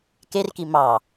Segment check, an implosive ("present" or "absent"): absent